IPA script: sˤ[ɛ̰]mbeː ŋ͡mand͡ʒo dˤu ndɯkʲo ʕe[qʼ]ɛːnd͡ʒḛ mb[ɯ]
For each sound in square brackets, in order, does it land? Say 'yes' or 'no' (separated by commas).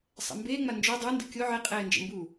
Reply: yes, yes, no